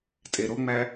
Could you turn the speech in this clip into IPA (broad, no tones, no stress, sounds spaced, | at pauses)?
tʼ e ɾ o ŋ͡m æ